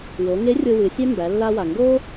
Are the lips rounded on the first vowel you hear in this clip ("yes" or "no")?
yes